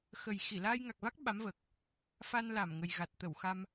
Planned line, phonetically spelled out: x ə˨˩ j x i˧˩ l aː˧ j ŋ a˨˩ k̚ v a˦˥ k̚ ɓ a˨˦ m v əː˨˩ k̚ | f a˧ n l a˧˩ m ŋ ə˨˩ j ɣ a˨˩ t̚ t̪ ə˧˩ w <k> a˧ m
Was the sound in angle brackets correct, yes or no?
no